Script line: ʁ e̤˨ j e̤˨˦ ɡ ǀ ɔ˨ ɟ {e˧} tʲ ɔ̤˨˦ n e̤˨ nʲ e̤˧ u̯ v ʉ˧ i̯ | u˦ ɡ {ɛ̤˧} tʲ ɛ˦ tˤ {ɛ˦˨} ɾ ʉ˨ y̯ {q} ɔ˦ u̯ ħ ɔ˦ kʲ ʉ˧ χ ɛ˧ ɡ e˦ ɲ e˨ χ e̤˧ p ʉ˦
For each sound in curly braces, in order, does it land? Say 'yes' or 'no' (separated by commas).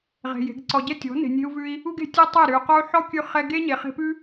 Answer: no, no, yes, yes